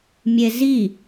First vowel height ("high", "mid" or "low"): mid